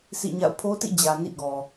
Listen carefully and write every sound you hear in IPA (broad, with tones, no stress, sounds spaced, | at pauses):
s ḭ˦˨ ɲ a̰˦˨ ʊ̯ pʰ o˦ t ḭ˦˨ d͡ʑ ä˨ n ḭ˦˨ ɡ ɔ˨